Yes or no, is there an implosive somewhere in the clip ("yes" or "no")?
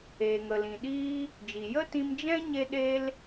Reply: yes